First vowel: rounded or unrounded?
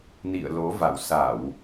unrounded